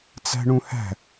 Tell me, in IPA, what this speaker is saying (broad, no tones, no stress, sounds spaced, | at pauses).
t͡s æ̤ ɳ ũ h æ̤